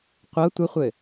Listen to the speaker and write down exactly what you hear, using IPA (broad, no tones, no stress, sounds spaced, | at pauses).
qʷ ɤ tʷ ə χʷ ɘ